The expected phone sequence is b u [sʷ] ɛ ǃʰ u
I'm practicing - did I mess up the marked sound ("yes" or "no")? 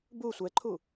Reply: no